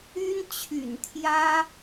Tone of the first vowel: high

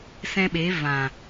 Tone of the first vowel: high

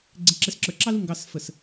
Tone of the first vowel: low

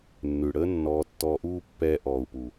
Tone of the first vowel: low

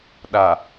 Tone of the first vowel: low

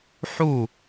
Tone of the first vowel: falling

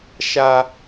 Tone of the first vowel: high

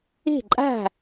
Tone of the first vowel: falling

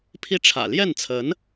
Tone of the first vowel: falling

